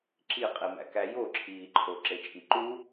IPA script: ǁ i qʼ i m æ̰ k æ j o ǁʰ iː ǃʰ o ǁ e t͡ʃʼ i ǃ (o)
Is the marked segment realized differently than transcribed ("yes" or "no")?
yes